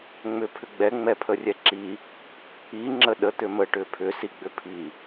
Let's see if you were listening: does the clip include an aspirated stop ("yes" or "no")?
yes